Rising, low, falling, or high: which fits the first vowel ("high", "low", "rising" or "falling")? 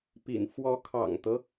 low